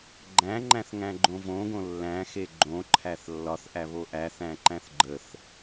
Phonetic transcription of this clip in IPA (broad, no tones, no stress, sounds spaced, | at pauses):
ɡ͡ǃ æ̃ ŋ͡ǃ æ̃ θ ŋ æ̃ ɡ͡ǃ õ v õ ɡ õ lː æ̃ x e ɡ͡ǃ õ ǃʰ æ θ lː ɒ θ ʔ æ β o ʔ æ θ æ̃ ǃ æ̃ θ ɡ͡ǃ ə θ